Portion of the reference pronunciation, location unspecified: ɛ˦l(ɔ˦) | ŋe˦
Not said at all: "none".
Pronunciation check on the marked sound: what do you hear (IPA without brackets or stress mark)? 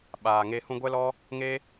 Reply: ɔ˦